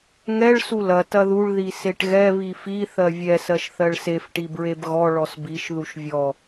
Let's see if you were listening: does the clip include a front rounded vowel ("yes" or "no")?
no